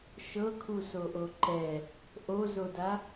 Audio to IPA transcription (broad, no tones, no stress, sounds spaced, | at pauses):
ʃ ɤ kʰ u s o ʔ o ǃ ɛ | ʔ o z o d a